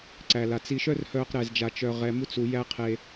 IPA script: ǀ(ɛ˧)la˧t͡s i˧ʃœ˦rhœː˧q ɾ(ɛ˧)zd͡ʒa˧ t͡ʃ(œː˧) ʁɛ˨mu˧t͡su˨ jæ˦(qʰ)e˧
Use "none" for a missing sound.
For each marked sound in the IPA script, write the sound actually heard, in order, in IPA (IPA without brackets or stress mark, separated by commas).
æ˧, ɛ˧, œ˧, qʰ